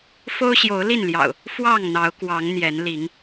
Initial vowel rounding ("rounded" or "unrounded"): rounded